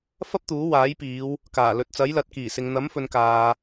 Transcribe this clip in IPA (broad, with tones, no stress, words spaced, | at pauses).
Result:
fɐ˥p̚t̪uː˨˥waː˨˥jpiː˨˧w | kaː˨˩lɵ˨t̚ t͡sɐ˨˥jlɐ˨˥t̚kiː˨˩sɪ˨ŋ n̪ɐ˨˥mfɵ˨n kaː˨